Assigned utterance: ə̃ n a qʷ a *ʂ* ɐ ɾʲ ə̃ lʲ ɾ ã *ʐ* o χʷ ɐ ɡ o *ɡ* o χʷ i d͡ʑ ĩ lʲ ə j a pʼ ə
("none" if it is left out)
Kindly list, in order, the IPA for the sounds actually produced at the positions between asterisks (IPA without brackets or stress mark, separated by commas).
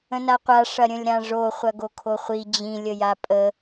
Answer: ʂ, ʐ, kʰ